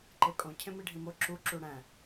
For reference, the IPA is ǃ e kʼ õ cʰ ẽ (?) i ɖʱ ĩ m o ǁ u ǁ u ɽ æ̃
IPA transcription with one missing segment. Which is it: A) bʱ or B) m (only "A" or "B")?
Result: B